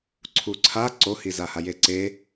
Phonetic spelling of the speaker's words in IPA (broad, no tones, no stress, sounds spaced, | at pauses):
ǀʰ u ǀʰ a ǀ o h i z a h a j e ǀ e